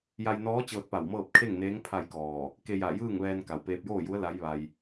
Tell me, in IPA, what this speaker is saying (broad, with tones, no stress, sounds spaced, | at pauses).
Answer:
j a˧ j n ɔː˧˥ t͡ɕ ɤː˧ t̚ p a˧˩ w m ɤː˥˨ p̚ kʰ e˥˨ ŋ n eː˧˥ ŋ pʰ a˥˨ j k ɔː˧˩ | k e˧ j a˧˩ j ɯː˥˨ ŋ ʋ ɛː˧ n k a˩ w p eː˧ p̚ j oː˥˨ j u˧˥ ə̯ l a˧˥ j ʋ a˧ j